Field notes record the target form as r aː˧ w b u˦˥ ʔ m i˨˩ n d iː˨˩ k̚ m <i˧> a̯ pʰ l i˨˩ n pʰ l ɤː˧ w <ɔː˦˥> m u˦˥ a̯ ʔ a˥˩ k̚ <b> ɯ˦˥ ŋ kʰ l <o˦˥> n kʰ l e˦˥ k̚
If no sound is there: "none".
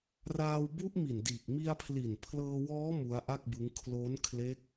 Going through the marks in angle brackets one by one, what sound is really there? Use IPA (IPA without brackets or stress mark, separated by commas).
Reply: i˧, ɔː˦˥, b, o˦˥